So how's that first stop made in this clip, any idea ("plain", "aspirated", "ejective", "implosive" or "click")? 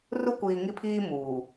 plain